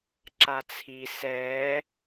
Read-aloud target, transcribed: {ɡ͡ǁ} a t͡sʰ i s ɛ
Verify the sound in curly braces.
incorrect: ǁ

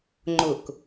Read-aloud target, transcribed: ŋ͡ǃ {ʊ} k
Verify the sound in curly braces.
correct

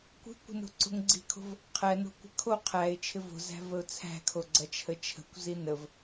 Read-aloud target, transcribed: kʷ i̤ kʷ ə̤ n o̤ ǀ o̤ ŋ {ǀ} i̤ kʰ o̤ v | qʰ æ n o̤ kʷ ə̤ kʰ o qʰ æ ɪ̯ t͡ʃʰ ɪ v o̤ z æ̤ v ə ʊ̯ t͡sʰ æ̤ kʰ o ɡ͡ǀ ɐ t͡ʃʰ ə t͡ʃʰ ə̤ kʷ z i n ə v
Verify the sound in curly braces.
incorrect: ɡ͡ǀ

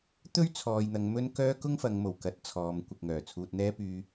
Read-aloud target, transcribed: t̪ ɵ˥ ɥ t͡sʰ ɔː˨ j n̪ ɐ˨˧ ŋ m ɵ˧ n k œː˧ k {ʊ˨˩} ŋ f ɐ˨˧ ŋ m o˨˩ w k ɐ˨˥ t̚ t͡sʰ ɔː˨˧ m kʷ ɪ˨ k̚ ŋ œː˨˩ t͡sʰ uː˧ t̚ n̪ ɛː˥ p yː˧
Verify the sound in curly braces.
incorrect: ʊ˥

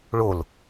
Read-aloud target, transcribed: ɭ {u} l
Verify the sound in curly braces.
incorrect: o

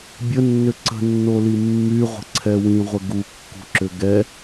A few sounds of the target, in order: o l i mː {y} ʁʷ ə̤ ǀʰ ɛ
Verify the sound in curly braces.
correct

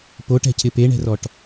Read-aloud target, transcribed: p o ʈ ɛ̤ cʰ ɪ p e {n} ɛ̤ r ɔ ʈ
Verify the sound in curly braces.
incorrect: ɳ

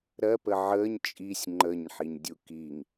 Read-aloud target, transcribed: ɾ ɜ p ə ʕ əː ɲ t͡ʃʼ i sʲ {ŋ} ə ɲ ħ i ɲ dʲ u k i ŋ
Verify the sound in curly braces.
incorrect: ŋ͡ǃ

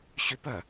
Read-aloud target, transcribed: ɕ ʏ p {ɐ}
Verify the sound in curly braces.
correct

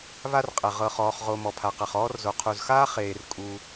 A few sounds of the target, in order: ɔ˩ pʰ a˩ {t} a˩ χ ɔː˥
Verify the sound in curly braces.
incorrect: q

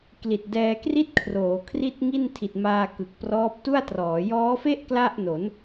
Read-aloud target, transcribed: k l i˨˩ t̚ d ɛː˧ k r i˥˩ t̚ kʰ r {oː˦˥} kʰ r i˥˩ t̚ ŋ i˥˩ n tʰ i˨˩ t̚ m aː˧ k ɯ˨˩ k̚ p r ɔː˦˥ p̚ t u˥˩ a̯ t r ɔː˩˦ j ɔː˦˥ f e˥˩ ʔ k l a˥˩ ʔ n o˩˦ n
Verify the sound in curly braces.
incorrect: oː˩˦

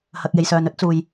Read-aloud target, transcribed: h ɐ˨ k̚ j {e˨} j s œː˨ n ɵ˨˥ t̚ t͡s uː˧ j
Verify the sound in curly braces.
correct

